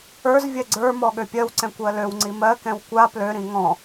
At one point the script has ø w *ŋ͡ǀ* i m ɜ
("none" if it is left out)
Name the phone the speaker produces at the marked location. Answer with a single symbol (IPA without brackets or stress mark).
ŋ͡ǀ